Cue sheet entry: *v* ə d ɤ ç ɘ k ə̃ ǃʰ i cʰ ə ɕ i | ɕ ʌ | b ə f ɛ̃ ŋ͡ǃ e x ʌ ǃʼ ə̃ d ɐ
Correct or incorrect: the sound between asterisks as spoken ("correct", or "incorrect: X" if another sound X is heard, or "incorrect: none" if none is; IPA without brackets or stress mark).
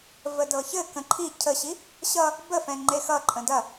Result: correct